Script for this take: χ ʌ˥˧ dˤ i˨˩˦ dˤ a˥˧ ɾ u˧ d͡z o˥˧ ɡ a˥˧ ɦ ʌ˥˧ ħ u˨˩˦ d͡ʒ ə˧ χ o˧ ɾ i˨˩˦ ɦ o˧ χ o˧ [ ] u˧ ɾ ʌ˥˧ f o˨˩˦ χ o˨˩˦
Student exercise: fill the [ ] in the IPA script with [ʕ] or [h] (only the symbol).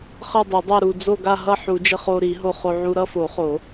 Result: ʕ